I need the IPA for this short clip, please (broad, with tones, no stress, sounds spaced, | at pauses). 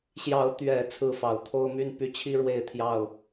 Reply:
ɕ j ɑ˨˦ ʊ̯ t̪ ɥ ɛ˨˩ t͡sʰ ɹ̩˥˨ f ɑ˨˩ ʊ̯ t̪ʰ o˦ ʊ̯ m y˦ n p y˥˨ t͡ɕʰ i˦ ɻ w e˥˨ ɪ̯ t̪ʰ j ɑ˥˨ ʊ̯